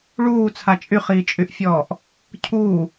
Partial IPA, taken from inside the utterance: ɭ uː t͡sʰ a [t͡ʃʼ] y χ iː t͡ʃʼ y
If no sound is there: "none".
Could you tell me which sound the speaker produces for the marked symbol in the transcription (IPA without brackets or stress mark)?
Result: t͡ʃʼ